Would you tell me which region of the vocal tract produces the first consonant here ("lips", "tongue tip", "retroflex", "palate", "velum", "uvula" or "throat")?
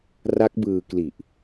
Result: tongue tip